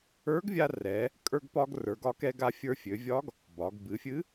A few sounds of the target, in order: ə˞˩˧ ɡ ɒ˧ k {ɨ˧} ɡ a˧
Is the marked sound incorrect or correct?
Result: incorrect